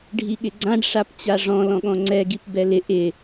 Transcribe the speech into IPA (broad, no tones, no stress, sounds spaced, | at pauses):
ɖʱ i ɠ ɪ ɡ͡ǀ ã ɖ ʂ a p t͡ɕ a ʐ ɔ̃ l ɔ̃ ɠ ɔ̃ ŋ͡ǀ ɛ ɡ i p b ɛ l ɪ ʔ ɪ